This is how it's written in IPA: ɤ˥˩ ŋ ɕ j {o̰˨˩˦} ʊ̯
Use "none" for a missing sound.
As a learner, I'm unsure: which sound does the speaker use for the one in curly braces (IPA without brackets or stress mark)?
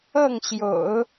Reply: o̰˨˩˦